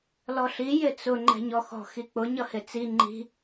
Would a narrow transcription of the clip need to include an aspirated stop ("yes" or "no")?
no